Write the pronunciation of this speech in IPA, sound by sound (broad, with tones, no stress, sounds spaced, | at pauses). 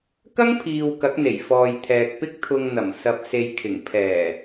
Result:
k ɐ˥ ŋ pʰ iː˧ w k ɐ˨˥ k̚ n̪ e˨˩ j f ɔː˨ j t̪ʰ ɛː˨ k̚ p ɪ˥ k̚ t̪ʰ ʊ˧ ŋ n̪ ɐ˨˩ m s ɐ˨ p̚ s e˨ j kʰ ɪ˨˩ ŋ pʰ ɛː˨˩